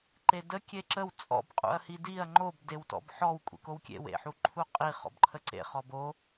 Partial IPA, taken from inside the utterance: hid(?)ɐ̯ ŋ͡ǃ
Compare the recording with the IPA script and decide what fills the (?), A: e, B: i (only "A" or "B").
B